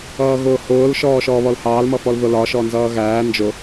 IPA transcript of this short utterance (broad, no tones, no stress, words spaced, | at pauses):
ʌːɣʊːhʊːl ʃɔːʃɔːβɔlhɑːl mʌfɔlðʊlɒ ʃɔnzʌːɣæː nd͡ʒʊ